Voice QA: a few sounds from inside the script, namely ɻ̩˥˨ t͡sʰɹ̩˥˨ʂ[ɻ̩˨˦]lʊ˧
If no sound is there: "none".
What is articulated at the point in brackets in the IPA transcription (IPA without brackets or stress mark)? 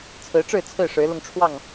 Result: ɻ̩˨˦